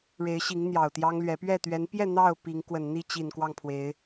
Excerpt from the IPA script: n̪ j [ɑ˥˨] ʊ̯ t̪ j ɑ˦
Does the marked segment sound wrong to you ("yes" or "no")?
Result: yes